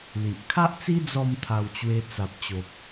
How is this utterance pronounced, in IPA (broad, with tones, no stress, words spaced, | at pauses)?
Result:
li˨ʔ kʰa˦ʔt͡si˦ d͡zɔ˥˧mt̪ʰa˧wt͡ɕwe˧ t͡sa˨p̚t͡ɕo˨p̚